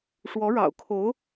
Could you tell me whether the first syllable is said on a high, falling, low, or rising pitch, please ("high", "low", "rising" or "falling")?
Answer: rising